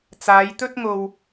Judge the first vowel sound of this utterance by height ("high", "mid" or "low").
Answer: low